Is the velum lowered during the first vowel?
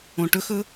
yes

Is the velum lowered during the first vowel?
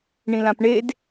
yes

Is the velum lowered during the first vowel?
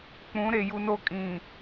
yes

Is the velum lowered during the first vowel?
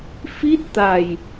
no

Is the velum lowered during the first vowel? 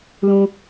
yes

